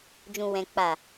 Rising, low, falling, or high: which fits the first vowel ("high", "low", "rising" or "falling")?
low